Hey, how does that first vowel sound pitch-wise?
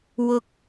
high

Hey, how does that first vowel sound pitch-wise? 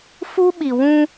high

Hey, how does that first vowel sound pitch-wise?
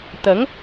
rising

